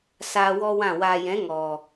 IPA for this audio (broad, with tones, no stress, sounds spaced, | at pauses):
s aː˧ w ɔ˦ w ã˦˨ w aː˨ j ɛ̃˨˦ ŋ ɔ˨